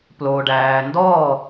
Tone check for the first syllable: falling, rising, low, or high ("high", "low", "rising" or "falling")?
low